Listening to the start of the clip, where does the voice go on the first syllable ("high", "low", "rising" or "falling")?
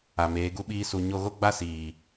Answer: low